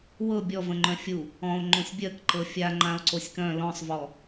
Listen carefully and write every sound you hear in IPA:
w ɤ bʲ ɔ v ə̃ ŋ͡ǃ œ̃ fʲ u | ɔ̃ o̯ ŋ͡ǃ õ sʲ bʲ ɜ k ǃ ɤ fʲ a ŋ͡ǃ ã o̯ ǀ o sʲ k œ̃ l ɔ̃ sˤ v ɔ

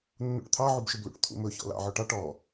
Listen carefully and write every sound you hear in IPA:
nː ṵ ʈ t̪ʰ ɑ ʕ u b ʃ ɵ b l ṵ ʈ t̪ʰ ṵ m ɵ ç ɔ̰ l ɑ̰ ʕ ɔ ʈ ɑ ʈ ɔ

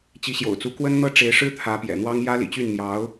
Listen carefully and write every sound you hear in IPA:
t͡ɕ i˧˥ ɕ j o̰˨˩ ʊ̯ t͡s u˧˥ k w ə˥ n n̪ ɤ˥ ʈ͡ʂ e˧˥ ɪ̯ ʂ ɻ̩˥ t̪ʰ ä˧˥ p j ɛ̰˨˩ n̪ w ɑ˥ ŋ j ä˥ l ḭ˨˩ t͡ɕ y˥˩ n n̪ j ɑ˧˥ ʊ̯

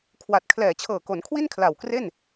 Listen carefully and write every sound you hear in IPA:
kʰ w a˨˩ t̚ kʰ l ɛː˨˩ t͡ɕʰ ɤː˨˩ k o˩˦ n kʰ w i˥˩ n kʰ l a˨˩ w k r e˥˩ n

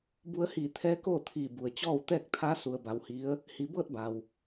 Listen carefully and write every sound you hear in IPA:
b u˧ ə̯ h iː˧˩ t̪ʰ ɛː˧˥ k oː˥˨ t̪ʰ iː˧˩ b u˩ ə̯ t͡ɕ ɔː˥˨ w t̪ ɛː˥˨ k̚ t̪ʰ a˧˥ s u˧ ə̯ b a˧ w h i˧˥ ə̯ | h i˩˧ b ɤː˥˨ t̚ b a˩ w

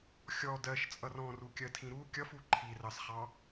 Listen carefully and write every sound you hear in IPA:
xʲ ɔ d ɜ ʃ t͡sʼ ʌ r ɔ̃ r u kʲ ɜ tʰ ĩ ɾ u kʲ ʌ f u ǃʰ i r ɑ s χ ɑ

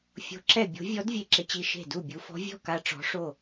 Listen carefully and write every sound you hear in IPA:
fʲ o̤˧˥ ǁ ɛ˥˨ bʲ o̤˧˥ vʲ ɔ˧˥ d vʲ e˥˨ ǁ ɪ˧˥ t͡ɕ i˧˥ ʃ e̤˥˨ d u˥˨ bʲ u˧˥ f ɔ̤˧˥ vʲ ɔ̤˥˨ k a˧˥ ʈ͡ʂ ɔ̤˧˥ ʂ o˥˨

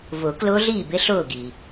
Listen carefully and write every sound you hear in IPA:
v ʊ˨˩˦ k l ʊː˦˥ ɮ iː˥˨ b ɪ˦˥ ɬ ʊː˥˨ ɡ i˩

